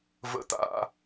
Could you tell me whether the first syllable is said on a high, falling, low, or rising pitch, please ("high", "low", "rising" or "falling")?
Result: falling